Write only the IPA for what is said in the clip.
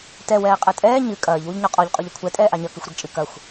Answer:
t ɛ w ɛː qʼ ɘ tʼ ɛː ɲ ɨ kʼ ɐː ʎ w u ʎ ɲ ɔ qʼ ɔ ʎ qʼ o ʎ ɐ kʷʰ ɛ tʼ ɛː ʔ a ɲ ɐ k ɨ xʷ ɾ e ɡ t͡ʃʼ ɨ k ɐ xʷ

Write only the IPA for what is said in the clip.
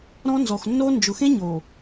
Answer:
ɾ ɔ̃˦ n z ɔ˨ x nː oː˦ n d͡ʒ ʊ˨ x ẽ˦ ɲ oː˨

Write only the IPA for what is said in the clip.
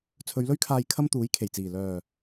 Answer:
t͡sʰ ɵ˨˧ ɥ l ɵ˥ ɥ kʰ aː˧ j kʰ ɐ˥ m t̪ uː˨˥ j kʰ e˨˩ j t͡s iː˨˩ l œː˨˩

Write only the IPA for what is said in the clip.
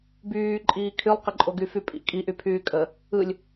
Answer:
b yː ǃʼ iː kʰ y lˠ q ɘ ǃʼ o ɡ y f y pʼ ḭ kʼ i ʔ y pʰ yː kʼ ə | ɯ lʲ

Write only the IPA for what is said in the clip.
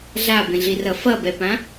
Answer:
ɮ a b ẽ ɮ i r ʌ f ʌ b ɛ p ã

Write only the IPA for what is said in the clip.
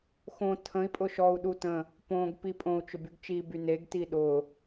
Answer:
x õ tʰ ə̃ i̯ pʼ ʊ ʃ ɔ u̯ ɗ u t ə̃ | p õ ɡ p i pʼ õ u̯ t͡ʃ ʊ b y ɡ t͡ʃ i b y n e ɡ t i ɗ ʊ

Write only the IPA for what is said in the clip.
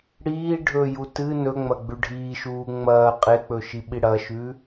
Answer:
ɽ iː ɖʱ ɵ j u t ɨ n ɵ ŋ͡m ɐ ɡ͡b ʉ ɖʱ iː ʃ uː ŋ͡m ɐː qʼ e k͡p ɵ ʃ i ɓ i ɽ ɐ ʃ ʉ

